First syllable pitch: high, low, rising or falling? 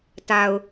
low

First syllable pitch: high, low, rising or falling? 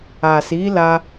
low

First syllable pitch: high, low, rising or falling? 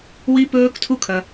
high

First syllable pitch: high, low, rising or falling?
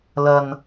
low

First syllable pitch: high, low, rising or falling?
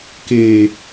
low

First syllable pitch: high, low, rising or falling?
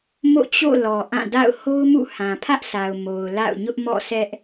falling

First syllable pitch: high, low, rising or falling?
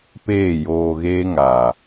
falling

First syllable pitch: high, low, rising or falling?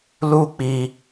high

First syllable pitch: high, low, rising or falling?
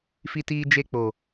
high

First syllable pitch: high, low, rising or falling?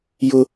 high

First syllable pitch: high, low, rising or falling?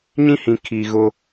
high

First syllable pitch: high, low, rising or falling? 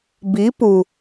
rising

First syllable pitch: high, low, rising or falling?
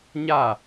falling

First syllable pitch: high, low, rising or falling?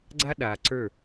high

